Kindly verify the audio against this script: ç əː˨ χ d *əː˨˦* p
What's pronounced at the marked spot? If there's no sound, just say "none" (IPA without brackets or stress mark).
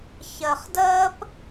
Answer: əː˦